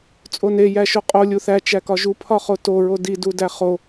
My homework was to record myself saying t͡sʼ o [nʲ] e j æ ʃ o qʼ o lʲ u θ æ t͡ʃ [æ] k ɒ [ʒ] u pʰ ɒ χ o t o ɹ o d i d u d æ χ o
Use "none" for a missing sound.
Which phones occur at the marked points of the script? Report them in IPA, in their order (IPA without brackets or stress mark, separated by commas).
n, æ, ʒ